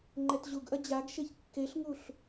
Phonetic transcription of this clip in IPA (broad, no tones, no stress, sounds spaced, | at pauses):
ŋ͡ǃ ɛ t ʑ u ɡ ʔ ɐ d͡ʑ a ɡ ʃ e ç kː e ɬ ŋ u ɬ